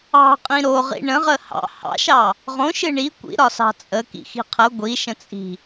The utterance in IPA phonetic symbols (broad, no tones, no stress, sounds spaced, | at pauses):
ɑ̤ qʼ ĩ ɾ o ʁ ḭ ɳ ə̃ ʁ ə h ɑ̰ h ɑ̰ ʃ ɑ | ʁ õ ʃ ɨ ɳ i kʷ ḭ ɾ ɒ s ɑ̤ t͡sʼ ə k ḭ x i̤ qʰ ə ɡʷ i ʃ ə̃ t͡sʼ i̤